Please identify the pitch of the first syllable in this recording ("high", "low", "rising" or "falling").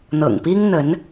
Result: low